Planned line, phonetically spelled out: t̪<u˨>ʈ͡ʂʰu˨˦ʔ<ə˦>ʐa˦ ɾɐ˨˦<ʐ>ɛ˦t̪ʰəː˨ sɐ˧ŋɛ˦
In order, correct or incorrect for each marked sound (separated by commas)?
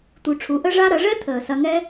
correct, correct, correct